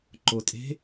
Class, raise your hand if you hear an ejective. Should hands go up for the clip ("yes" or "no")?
yes